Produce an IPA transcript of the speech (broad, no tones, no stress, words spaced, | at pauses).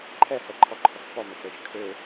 ǃʰɛhɛǃʰɔǃʰɔk pɔmɛk͡pɛʃ kʰø